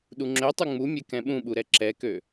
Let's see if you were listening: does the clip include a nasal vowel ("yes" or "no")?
yes